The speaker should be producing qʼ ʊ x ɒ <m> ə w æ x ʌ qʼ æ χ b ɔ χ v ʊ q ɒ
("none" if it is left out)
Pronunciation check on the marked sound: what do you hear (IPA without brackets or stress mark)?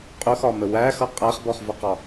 m